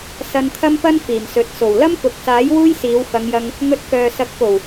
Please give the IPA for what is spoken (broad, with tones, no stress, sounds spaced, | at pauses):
s ɐ˧ n t̪ʰ ɐ˥ m p ɐ˥ n f iː˨˩ m s ɵ˨˥ t̚ s o˨˩ w l ɐ˥ m k ʊ˨ k̚ s aː˨˥ j w uː˥ j s iː˨˧ w f ɐ˨˧ ŋ j ɐ˧ ŋ | ŋ ɵ˧ t̚ k œː˨ s ɐ˨˥ k̚ p o˨˩ w